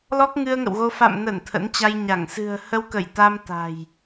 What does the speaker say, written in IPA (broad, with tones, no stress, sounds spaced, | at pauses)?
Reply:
l ɔ˦˥ k̚ ŋ ɨ˧ ə̯ ŋ ə̰˧˨ w ɣ o˧ f a̰˧˨ m n ə˧˩ n t̪ʰ ə̰˧˥ n t͡ɕ a˧ j ɲ a˧˩ ŋ s ɨ̤˨˩ ə̯ h ə˧ w k ə˧˩ j t̪ a˧ m t̪ a̤˨˩ j